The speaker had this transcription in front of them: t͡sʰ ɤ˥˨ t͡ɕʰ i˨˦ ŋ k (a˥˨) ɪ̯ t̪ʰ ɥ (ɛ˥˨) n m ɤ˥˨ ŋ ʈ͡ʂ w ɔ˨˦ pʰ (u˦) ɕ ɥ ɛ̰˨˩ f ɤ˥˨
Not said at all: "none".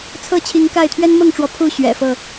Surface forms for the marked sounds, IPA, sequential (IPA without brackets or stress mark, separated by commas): a˥˨, ɛ˦, u˥˨